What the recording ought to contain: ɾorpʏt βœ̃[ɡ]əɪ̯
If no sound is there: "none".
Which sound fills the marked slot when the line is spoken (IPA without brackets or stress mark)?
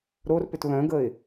ɡ